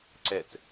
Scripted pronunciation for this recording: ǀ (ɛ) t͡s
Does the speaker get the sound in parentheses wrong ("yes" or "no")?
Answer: no